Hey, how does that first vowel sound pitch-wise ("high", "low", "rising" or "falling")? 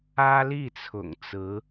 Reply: high